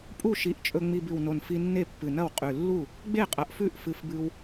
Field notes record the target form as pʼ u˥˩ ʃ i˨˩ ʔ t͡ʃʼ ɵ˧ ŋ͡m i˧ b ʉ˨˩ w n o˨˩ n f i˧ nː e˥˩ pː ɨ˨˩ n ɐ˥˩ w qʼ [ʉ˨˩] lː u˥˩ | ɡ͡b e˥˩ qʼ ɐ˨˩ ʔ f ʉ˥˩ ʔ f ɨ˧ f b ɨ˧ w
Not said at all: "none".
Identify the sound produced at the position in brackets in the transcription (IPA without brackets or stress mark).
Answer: ʉ˨˩